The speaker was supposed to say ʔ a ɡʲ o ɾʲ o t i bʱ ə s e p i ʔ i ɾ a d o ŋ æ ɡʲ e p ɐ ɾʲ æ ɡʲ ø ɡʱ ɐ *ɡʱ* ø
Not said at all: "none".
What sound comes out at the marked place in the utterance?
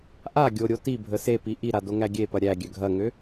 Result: ŋ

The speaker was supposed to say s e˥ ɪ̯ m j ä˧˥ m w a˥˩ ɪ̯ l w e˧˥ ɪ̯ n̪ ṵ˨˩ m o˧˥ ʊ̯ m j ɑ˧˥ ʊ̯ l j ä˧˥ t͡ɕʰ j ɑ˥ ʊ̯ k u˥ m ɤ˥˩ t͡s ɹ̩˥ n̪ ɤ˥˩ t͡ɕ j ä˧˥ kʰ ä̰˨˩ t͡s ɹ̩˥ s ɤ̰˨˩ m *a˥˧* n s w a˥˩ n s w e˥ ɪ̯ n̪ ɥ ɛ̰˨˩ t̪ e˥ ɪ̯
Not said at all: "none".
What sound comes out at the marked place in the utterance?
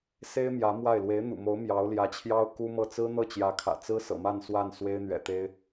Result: a˥˧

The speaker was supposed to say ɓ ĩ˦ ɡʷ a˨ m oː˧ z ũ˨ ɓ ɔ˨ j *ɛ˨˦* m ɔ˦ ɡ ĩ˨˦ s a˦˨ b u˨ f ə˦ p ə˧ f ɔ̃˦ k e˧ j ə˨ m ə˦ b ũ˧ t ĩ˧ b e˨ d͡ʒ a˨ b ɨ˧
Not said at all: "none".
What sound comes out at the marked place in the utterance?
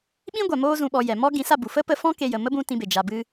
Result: ɛ˨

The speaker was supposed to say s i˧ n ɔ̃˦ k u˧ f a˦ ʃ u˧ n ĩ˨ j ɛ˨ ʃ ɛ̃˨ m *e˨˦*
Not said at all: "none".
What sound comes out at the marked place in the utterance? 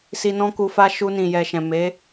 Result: e˨˦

